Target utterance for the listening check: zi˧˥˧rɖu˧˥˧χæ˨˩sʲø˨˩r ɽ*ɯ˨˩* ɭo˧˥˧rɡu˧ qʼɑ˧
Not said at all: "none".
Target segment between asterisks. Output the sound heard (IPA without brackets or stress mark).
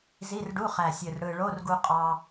ɯ˨˩